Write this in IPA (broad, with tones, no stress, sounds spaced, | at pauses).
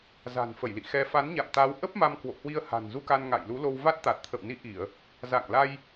z a̤˨˩ n f ə˧˩ j l ḭ˧˨ x ɛ˧ f a˨˦ n ɲ a̰˧˨ m t̪ a˨˦ w ʔ ə˦˥ p̚ m a˧ m k w o̰˧˨ h w i˧ ə̯ h a̤˨˩ n z u˧ k a˧ n ŋ a̰˧˨ j l u˨˦ l o˧ w v a˦˥ t̚ t̪ a˨˩ t̚ t̪ʰ ə̰˧˨ w n i˨˦ ʔ i˧˩˨ ə̯ | z a̰˧˨ ŋ l a˧ j